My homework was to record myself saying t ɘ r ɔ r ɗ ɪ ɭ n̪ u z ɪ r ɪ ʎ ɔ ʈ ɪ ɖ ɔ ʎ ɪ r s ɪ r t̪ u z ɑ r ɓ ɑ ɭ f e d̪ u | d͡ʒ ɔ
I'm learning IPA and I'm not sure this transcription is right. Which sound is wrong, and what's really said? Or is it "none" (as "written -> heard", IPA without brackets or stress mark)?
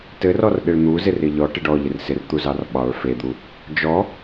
none